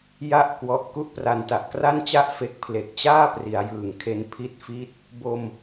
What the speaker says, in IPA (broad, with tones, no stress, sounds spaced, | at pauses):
j a˥˩ ʔ k w ɔ˦˥ ʔ k u˥˩ ʔ p r a˧ n t a˨˩ ʔ k r a˥˩ n t͡ɕ a˥˩ ʔ f e˦˥ k̚ pʰ l e˨˩ k̚ t͡ɕ aː˥˩ p r i˩˦ a̯ j ɯː˨˩ ŋ kʰ e˧ n pʰ i˦˥ t̚ f i˦˥ t̚ | b o˧ m